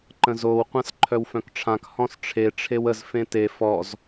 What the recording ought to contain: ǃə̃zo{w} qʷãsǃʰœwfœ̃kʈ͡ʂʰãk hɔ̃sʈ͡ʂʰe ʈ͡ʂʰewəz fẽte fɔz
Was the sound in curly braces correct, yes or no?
yes